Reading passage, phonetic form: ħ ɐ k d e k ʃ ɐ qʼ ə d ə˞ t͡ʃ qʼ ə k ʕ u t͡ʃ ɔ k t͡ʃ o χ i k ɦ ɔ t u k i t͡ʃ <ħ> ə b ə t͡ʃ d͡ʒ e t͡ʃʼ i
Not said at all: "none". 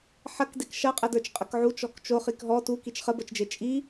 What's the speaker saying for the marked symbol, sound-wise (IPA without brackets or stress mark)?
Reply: χ